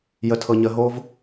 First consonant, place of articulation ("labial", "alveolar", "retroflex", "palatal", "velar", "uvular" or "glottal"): palatal